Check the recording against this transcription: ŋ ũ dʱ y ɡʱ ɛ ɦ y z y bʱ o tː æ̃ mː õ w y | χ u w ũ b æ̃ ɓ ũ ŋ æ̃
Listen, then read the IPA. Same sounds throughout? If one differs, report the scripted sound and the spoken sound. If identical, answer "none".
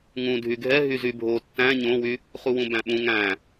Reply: mː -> ɲ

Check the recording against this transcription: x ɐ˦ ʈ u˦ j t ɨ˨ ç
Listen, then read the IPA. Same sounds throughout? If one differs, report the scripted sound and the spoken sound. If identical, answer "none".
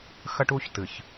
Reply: j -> ç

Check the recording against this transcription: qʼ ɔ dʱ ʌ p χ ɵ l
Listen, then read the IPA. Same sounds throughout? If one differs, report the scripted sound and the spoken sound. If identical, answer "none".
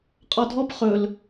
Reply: ʌ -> ɔ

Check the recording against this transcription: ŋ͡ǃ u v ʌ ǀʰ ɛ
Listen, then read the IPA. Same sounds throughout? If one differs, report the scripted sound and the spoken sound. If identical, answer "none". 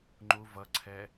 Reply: none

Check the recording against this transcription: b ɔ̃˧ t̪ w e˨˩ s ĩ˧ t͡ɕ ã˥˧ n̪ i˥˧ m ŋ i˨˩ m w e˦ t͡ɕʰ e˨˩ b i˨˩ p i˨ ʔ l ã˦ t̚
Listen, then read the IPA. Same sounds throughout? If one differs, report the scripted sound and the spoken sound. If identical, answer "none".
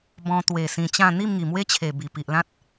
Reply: none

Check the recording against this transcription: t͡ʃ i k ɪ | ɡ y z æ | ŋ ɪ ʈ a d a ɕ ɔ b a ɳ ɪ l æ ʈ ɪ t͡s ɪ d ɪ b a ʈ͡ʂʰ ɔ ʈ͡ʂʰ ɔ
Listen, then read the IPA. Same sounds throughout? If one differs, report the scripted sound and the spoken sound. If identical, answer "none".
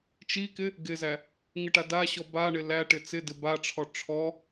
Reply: y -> ɪ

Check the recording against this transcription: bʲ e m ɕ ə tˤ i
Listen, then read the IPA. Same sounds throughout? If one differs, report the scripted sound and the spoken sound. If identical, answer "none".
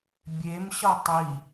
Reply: ə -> ʌ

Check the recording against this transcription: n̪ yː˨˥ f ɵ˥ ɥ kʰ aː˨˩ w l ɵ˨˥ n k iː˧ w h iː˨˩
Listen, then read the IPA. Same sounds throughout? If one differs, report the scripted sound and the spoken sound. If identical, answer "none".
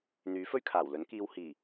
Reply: none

